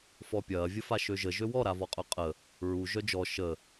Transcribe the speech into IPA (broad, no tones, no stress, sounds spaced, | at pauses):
f ɔ pʲ ɐː vʲ ə f a ʃ ø ʒ ə ʒ ø w ɔ ɾ a v ɔ qʼ œ qʼ ə | ɹ u ʒ œ d͡ʒ ɔ ʃ ə